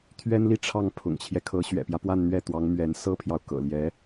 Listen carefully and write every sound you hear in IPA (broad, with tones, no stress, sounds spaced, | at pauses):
t̪ʰ ɥ ɛ˥ n l i˥˧ ʈ͡ʂʰ ɑ˥˩ ŋ pʰ ʊ̰˨˩ ŋ t͡ɕʰ j ɛ˦ kʰ ɤ˧˥ ɕ ɥ ɛ̰˨˩ p j ä˦ p w a˥˧ n n̪ ɥ ɛ˥˩ t̪ w ɑ˧˥ ŋ m ɥ ɛ˧˥ n s ɤ˥ pʰ j ɑ˨ ʊ̯ k ɤ̰˨˩ l j ɛ˧˥